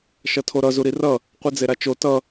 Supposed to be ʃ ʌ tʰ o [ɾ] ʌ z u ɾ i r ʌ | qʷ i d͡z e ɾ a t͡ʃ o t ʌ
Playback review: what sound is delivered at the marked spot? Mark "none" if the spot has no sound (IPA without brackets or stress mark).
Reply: ɾ